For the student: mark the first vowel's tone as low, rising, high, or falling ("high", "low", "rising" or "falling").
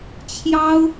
high